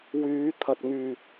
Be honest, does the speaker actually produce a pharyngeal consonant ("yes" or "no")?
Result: no